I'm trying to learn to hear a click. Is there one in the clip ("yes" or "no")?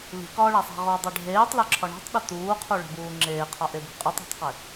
yes